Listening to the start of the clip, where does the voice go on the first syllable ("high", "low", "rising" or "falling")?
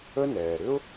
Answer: high